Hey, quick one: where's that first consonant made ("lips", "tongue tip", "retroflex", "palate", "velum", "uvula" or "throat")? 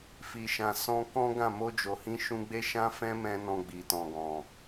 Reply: lips